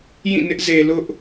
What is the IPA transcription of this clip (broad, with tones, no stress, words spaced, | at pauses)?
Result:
jĩ˦˨nɪ˦ʔze˨ lʊ˦ʔ